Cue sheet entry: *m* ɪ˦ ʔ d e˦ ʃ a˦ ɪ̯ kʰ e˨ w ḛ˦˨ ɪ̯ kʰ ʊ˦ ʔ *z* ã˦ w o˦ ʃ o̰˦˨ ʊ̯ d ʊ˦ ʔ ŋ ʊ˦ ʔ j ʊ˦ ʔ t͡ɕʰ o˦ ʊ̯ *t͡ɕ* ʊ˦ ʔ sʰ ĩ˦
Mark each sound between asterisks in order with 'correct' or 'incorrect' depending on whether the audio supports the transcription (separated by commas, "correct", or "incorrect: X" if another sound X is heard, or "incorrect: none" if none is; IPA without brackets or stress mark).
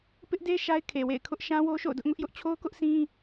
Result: incorrect: p, incorrect: ʃ, incorrect: k